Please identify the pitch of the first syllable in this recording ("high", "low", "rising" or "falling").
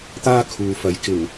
high